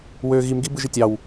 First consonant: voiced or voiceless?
voiced